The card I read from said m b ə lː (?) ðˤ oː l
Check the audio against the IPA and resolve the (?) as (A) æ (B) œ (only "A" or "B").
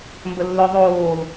B